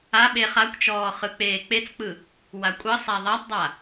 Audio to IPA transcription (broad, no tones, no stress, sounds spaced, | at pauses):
a ɓ e χ a kʷ t͡ʃ ɔː χ ɯ k͡p eː k͡p e t͡s k͡p ɯ | w a kʷʼ ʌ sˤ a ðˤ a tˤ dˤ a